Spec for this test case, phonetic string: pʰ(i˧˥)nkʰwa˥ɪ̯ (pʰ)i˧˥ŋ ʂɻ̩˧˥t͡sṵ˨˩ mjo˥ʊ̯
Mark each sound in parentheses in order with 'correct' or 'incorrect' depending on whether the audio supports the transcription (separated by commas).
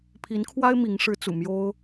correct, incorrect